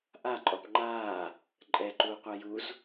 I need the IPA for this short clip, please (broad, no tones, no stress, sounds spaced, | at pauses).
ʔ a ǃʼ ɔ p ŋ͡ǃ aː | ǃʼ ɛ ǃ uː qʷ a j u z